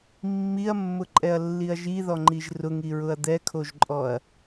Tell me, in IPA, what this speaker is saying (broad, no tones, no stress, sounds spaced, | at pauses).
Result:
mː i ɐ̯ mː ʊ ǃʼ ɛ ɐ̯ lː i ɐ̯ ʒ i ð ɔ ŋ͡ǃ i ʒ r ʊ ŋ i ɹ ʊ ɐ̯ d̪ ɛ kʰ o ʒ ǃʼ ɔ ɐ̯